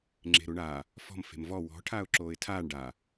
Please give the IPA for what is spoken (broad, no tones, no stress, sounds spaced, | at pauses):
ŋ͡ǁ e̤ ɾ u ɳ a | f ɔ̤ m f e̤ m v ɔ w ɔ̤ ʈʰ aː ʊ̯ ǁ oː ɪ̯ tʰ aː ɳ ɖ a